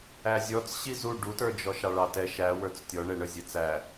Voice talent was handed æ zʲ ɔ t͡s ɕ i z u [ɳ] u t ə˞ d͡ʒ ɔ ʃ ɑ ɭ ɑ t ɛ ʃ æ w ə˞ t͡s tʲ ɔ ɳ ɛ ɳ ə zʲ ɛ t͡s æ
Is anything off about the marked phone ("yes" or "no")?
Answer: yes